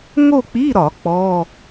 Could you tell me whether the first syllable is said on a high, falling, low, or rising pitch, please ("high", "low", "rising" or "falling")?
falling